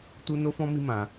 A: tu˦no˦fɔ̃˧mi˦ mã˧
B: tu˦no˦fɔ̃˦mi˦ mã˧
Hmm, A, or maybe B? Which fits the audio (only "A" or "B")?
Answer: B